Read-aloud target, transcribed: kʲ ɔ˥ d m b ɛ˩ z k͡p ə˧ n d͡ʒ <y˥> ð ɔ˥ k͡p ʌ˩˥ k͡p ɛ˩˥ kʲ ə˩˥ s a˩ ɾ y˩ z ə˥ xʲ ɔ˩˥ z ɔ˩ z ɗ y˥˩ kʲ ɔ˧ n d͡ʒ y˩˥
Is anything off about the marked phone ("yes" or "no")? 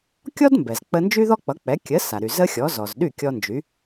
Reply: no